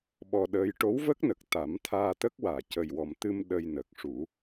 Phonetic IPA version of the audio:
ɓ ɔ˧ ɗ əː˧˥ j ʈ o˧˥ w v ə˦˥ k̚ n ə˨˩ k̚ t̪ a˨˩˦ m t̪ʰ aː˧ t̪ ə˦˥ k̚ w aː˨˩˨ c ə˨˩ j w ɔ˨˩ m t̪ ɨ˧ m ɗ ə˧ j n əː˨˩ k̚ ʂ u˨˩˦

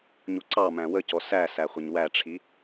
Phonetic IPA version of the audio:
ɲ u ǀ ɑ m æ̃ w ə c ɔ s æ s æ χʷ ɪ ɲ w æ ʈ͡ʂʰ i

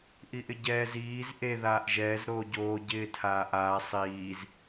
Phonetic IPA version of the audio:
ʔ i ʔ ɪ ɟ ɛː z iː z ʔ e ð aː ʔ ʒ ɛː z ɾ oː ɟ oː ɟ ɪː tʰ aː ʔ aː sˤ iː z

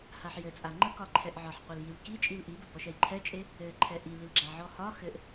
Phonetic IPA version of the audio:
h a ħ j ɘ t͡sʼ a ŋ͡ǃ ə k ɒ ǃʰ ɛ ʔ ʕ ɒ ħ qʷ ɛ l j i l k i t͡ʃʼ i l ʔ i b ɘ b ɔ ʃ ɛ j ǃʰ ɛ t͡ʃʼ e | ɘ ǃʰ ɛ ʔ i l i l ɡ͡ǁ a ʕ ɔ h ɒ x ɘ ʔ

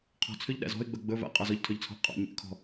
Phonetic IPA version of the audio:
qʰ ɔ̤ t͡sʰ ø ʎ ɗ æ̰ z ɔ̤ ɪ̯ ɡ͡b ɵ ɡ͡b ɵ v æ̰ qʼ ɑ z ɔ ʎ tʰ ø ʎ t͡sʰ ɔ̤ ʔ qʼ ɑ̰ ɲ ḭ ʔ kʰ ɔ̤

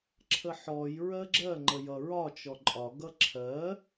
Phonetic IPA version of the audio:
ǁʰ ə ħ ɔ j ɹ ɜ ɡ͡ǁ ɜ ŋ͡ǃ ə j ʌ ɹ ɒ t͡ʃ ɔ ǃʼ ɒ ɡ ʌ ǁʰ ɜ

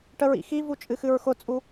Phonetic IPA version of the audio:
ʈ ə ɹ ḭ x i v u t͡ʃʼ ɨ x ɨ ɹ x ʊ t͡sʼ u

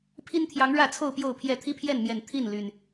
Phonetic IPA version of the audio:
pʰ i˦ n t̪ʰ j ɑ˨˦ ŋ ɻ ä˥˨ t͡sʰ o˥˨ ʊ̯ p j o˥˨ ʊ̯ pʰ j ɛ˥˨ t̪ʰ i˦ pʰ j ɛ˥˨ n m j ɛ˨˩ n t̪ʰ i˥˨ n l y˨˩ n

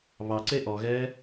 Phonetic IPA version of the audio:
β ɑ ǀ e ʔ ɔ ɣ ɛː

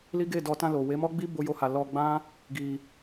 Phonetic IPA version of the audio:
l i˦ ɡ e˦˨ d ɔ˧ t ã˧ l o˨ w e˨˦ m ɔ˦ ɡ͡b i˦ b o˦ j o˦ h a˧ l ɔ˧ ɡ͡b ã˦ | ɡ i˧

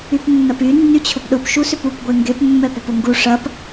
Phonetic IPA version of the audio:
y p nː ɐ p y nː y t͡ɕʰ ʊ p ɗ ʊ p ʃ u s ʏ p u p ɡʷ e ŋ ɡ e p mː ɛ p o p ʊ ŋ ɡ u ʂ ɐ p

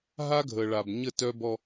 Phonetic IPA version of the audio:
ɦ a˦ ɡʱ ə˨ ɭ a˨ b ɲ ə˦˨ t œ˦ b ɔ˦

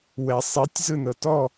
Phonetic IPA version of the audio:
w ɛ sˤ i tʲ z ɯ n ɤ t ɔ

